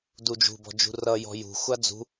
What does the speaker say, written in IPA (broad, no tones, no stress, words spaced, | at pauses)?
dud͡ʒṳbɔ̤d͡ʒṳ rʌ jɔ̤jṳ xʷad͡zṳ